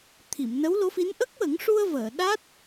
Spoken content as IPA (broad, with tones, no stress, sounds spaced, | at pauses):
t̪ʰ i˨˩˨ m n ə˧˥ w l o˧˥ f i˧˥ n ʔ ə˦˥ k̚ w ə˨˩˦ ŋ ʂ u˧ ə̯ v əː˨˩˨ ɗ a˦˥ t̚